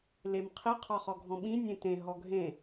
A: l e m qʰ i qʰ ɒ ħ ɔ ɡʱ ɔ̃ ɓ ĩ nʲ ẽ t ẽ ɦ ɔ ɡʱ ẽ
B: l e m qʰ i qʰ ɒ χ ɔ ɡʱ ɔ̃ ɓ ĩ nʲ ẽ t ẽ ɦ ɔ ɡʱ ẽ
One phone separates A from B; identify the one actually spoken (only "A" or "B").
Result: B